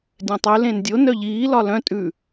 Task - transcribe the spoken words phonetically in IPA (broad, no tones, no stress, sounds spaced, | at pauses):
dʲ œ̃ tˤ ʉ l ẽ n dʲ o n œ ʎ iː l ɒ l œ̃ tʼ ʉ